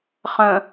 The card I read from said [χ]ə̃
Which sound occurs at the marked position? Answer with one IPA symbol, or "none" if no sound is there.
χ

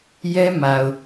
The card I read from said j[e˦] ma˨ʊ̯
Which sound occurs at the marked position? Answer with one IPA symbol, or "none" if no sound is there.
ɛ˦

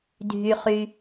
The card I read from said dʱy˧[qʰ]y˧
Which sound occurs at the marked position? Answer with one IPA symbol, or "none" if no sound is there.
χ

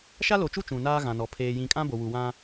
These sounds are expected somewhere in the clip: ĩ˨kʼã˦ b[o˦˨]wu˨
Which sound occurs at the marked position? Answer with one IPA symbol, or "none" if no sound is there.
o˨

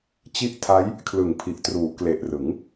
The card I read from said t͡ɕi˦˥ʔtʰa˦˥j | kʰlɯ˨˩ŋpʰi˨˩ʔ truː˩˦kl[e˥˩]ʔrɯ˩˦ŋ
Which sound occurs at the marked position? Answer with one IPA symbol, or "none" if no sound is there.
e˨˩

